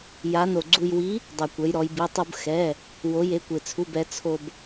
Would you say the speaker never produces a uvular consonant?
yes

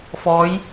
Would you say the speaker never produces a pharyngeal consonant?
yes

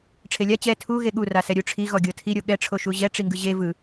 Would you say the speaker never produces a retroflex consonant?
no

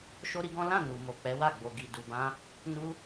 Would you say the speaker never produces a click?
yes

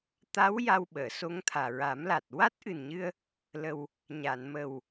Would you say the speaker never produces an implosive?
no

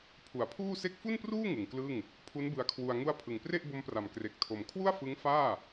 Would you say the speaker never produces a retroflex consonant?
yes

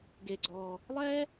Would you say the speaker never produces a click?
no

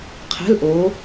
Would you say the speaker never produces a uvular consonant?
no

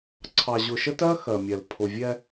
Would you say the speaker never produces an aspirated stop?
no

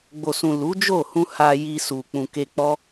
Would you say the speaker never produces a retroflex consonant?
yes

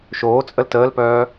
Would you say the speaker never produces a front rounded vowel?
no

